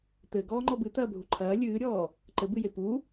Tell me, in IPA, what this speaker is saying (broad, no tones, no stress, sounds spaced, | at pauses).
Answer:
t̪ ɘː ɡ ɔː ŋ͡ǃ ɔ b ɨ t̪ ɐː bʱ u ǃʰ ɐː lʲ ɨː ɾʲ ɔː | ǃ ɘ b ɨ j e p u